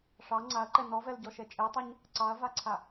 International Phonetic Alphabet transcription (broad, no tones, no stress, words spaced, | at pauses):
ʂɑ ŋ͡ǀaɐ̯ǃɛ nɔvɛlɟɔʃɛ t͡ʃʼetˤaɲ | ǀɑɐ̯vaǀʰa